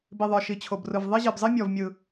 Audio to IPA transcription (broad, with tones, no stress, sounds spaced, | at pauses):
b i˨ ðˤ ə˞˨ ʃ i˨ t͡ɕʰ o˨ b r ɯ˨ v ðˤ e˦ ʑ e˨ b zˤ i˦ mʲ ɔ˨ v mʲ ɯ˨